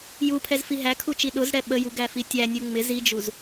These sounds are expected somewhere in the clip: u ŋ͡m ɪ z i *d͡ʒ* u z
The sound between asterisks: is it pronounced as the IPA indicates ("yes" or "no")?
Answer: yes